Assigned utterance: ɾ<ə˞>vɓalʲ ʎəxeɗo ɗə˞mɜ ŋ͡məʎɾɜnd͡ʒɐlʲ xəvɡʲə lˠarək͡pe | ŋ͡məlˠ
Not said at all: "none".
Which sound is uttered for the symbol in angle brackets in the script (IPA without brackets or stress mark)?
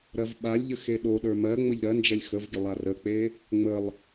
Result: ɜ